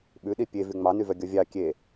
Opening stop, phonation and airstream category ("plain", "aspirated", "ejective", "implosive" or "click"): implosive